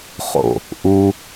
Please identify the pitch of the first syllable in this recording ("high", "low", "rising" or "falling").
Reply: low